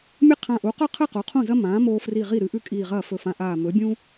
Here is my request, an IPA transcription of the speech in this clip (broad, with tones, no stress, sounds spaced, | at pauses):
mʲ ɨ˥ qʰ ã˧˩ ʔ u˩˥ q ɵ˥˩ qʰ ɨ˥˩ q o˩˥ qʰ ũ˥˩ z ɐ˥ m ãː˩˥ m oː˧ f r i˧˩ ʁ i˥˩ ɾ ɨ˧ ʔ ʉ˥ kʼ iː˧˩ ʁ ɐː˥˩ f ɵ˧˩ f ã˧ ʔ aː˧˩ m ɵ˩˥ bʲ ũ˥